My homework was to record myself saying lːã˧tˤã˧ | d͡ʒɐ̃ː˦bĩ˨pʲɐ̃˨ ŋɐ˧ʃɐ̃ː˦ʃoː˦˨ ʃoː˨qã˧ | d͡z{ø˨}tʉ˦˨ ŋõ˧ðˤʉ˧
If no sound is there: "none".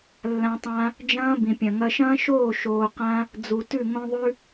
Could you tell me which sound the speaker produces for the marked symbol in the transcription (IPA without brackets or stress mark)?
u˨